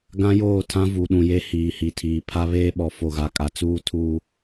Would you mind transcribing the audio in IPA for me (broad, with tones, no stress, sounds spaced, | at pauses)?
ɡ ã˦ j oː˦˨ tʰ ã˦ v u˨ ɗ ũ˨ j e˦ h iː˨ h i˨˦ tʰ iː˨ pʰ a˦ β eː˦ ɓ ɔ˨ f o˨ ɣ a˨ kʼ a˨ t͡s uː˦ tʰ u˨